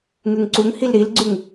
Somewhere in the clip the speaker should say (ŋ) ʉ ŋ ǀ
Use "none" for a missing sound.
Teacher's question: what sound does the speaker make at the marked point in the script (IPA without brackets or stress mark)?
ŋ